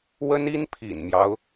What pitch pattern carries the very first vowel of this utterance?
high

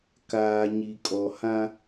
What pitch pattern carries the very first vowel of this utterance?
low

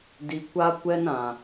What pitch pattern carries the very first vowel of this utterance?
low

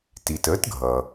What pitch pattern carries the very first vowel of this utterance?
low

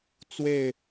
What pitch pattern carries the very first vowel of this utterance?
falling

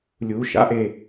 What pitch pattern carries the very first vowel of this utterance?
rising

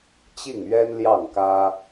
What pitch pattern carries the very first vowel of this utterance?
falling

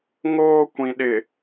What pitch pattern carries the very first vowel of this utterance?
high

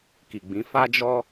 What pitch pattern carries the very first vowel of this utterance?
low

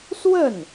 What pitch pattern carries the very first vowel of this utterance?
falling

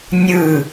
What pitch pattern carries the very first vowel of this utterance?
falling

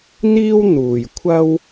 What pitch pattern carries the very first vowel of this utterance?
high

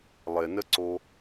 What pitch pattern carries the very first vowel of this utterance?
low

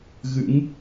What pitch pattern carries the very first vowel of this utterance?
rising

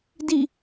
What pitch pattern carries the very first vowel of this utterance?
falling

